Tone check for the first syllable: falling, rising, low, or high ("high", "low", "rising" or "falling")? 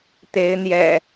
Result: rising